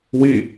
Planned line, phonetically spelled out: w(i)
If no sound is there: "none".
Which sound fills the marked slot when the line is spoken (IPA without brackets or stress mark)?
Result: i